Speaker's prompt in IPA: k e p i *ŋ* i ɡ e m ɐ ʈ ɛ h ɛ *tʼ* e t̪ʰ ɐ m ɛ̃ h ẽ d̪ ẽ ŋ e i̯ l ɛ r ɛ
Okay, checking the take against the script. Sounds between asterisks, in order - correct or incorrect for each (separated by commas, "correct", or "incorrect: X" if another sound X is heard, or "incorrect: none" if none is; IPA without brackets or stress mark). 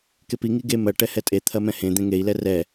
correct, correct